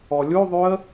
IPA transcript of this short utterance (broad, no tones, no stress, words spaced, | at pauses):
ɔlʲuðˤyə̯